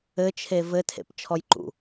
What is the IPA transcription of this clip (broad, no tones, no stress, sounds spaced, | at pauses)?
ɘ t͡ʃʰ e v ɘ tʰ ḛ p t͡ʃʰ ɔ j ǃ ṵ